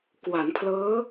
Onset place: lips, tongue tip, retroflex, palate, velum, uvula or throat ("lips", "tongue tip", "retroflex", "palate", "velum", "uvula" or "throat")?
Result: velum